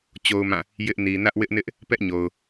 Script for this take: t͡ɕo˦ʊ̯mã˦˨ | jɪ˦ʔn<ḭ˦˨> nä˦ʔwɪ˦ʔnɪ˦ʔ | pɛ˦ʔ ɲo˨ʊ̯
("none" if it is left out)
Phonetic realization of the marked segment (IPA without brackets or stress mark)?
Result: i˨